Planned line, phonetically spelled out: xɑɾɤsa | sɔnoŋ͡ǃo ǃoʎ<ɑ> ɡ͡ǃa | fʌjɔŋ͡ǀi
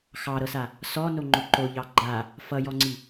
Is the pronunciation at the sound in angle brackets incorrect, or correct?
correct